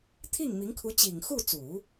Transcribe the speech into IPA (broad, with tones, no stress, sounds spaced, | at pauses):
t̪ʰ i˥˩ ŋ m i˧˥ ŋ kʰ u˧˥ t͡ɕ i˨˩ ŋ x u˥˩ t͡s u˨˩˦